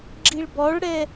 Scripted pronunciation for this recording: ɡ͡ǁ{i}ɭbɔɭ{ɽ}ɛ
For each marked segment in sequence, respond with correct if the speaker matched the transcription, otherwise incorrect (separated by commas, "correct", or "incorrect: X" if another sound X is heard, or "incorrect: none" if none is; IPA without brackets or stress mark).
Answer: correct, correct